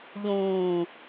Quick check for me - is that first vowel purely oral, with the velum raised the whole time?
no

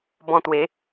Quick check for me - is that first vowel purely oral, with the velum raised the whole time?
no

